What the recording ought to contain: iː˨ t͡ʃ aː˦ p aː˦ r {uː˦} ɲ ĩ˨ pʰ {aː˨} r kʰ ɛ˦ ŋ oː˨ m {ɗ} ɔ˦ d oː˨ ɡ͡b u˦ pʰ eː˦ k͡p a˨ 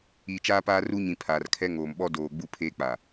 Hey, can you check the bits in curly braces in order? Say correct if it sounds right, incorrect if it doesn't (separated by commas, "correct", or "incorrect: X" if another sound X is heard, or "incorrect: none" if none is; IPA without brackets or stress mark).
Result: incorrect: u˦, correct, incorrect: ɓ